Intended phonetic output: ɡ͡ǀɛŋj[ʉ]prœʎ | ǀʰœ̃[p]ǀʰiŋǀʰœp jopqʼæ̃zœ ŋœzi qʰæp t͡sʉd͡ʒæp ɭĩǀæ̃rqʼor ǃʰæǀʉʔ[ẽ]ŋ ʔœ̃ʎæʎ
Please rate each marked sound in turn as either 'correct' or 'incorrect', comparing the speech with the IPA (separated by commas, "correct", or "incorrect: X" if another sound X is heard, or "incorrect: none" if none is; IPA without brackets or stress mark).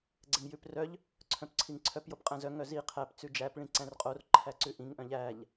correct, correct, incorrect: ĩ